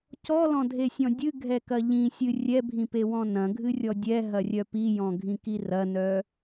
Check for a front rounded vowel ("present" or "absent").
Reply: present